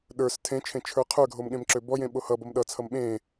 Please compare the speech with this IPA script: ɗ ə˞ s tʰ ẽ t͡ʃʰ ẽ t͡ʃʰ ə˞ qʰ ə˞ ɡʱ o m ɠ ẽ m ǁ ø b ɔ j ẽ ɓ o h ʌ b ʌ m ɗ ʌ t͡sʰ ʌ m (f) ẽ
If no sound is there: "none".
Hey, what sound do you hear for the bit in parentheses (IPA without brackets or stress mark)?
ɓ